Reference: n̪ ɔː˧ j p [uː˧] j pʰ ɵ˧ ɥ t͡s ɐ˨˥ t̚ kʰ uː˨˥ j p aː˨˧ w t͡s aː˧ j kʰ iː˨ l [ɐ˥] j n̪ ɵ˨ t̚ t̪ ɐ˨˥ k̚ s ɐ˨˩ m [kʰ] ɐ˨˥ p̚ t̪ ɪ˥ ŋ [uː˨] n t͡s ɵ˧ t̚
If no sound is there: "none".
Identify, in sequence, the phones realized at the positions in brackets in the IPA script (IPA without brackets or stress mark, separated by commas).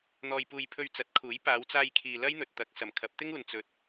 uː˧, ɐ˥, kʰ, uː˨